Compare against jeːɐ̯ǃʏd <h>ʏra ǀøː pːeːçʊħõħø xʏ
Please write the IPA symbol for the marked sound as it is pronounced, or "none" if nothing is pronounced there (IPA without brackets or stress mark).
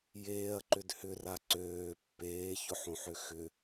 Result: h